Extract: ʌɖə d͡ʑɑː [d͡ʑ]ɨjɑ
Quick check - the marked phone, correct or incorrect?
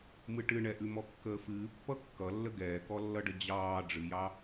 incorrect